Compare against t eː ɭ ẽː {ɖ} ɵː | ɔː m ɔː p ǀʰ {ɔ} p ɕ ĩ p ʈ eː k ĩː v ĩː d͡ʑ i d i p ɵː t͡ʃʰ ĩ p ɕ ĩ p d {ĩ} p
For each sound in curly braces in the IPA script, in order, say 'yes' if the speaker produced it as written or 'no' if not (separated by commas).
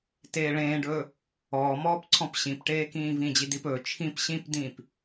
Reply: yes, no, no